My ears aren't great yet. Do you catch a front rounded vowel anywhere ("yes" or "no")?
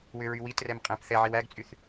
yes